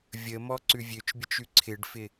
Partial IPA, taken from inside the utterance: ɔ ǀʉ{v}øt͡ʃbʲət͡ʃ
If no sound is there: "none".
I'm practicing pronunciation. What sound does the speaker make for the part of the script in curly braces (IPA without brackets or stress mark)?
vʲ